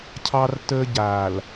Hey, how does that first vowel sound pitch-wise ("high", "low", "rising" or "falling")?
high